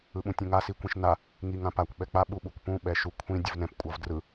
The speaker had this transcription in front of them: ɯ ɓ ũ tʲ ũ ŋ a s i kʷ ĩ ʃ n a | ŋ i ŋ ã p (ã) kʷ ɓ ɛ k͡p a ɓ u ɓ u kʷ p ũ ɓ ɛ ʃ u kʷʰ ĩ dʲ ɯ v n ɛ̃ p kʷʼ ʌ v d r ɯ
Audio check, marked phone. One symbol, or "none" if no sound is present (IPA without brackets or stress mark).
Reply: a